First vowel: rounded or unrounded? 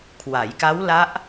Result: unrounded